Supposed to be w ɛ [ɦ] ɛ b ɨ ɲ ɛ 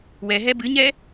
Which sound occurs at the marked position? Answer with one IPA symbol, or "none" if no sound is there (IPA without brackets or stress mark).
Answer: ɦ